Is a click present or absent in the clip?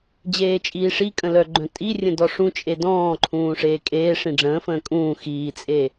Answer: present